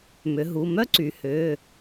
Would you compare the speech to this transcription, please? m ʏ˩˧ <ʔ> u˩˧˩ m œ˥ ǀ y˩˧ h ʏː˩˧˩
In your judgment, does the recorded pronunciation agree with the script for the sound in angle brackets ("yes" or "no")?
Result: no